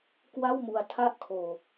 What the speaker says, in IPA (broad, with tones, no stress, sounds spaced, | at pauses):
k w a˥˩ w m u˧ a̯ tʰ a˥˩ ʔ kʰ oː˧